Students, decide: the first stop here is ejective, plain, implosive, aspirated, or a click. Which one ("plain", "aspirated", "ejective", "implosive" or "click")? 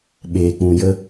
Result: implosive